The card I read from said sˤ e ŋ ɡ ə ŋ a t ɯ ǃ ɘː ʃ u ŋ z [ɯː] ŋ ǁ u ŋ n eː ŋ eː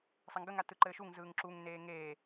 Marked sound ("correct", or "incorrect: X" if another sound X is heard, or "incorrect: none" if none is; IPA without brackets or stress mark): correct